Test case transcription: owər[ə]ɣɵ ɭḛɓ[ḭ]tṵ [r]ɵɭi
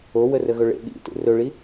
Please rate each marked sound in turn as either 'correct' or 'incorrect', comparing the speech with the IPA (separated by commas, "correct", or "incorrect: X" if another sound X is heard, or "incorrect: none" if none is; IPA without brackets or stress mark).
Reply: correct, correct, correct